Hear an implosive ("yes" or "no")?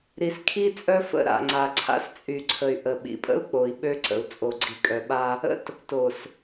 yes